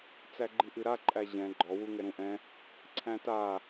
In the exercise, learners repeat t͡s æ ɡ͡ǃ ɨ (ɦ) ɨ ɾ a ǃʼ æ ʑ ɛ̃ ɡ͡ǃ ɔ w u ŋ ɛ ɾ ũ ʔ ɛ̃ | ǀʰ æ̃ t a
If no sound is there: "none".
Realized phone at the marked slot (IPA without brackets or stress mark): ʔ